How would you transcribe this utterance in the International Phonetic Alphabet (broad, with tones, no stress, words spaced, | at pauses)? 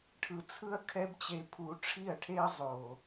ʈʰɯ˧t͡sʰɯ˦ɐ̯ kʰɛ˦bt͡ɕe˧ pʰu˧ʈ͡ʂʰi˦˨ɐ̯ʈʰe˦ɐ̯ zˤo˨